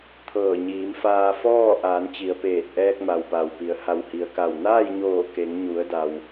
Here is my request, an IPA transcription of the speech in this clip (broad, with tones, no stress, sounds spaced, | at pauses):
t̪ʰ ɤː˧˩ ɲ iː˩˧ m f aː˧ f ɔː˥˨ ʔ aː˩˧ n t͡ɕ i˩ ə̯ p eː˧˩ t̚ ʔ ɛː˧ k̚ m a˩ w p a˩ w p i˩ ə̯ h a˧˩ w h i˩ ə̯ k a˧˩ w n aː˥˨ j ɲ oː˧˩ k e˩˧ ŋ ɲ u˩˧ ə̯ d a˩ w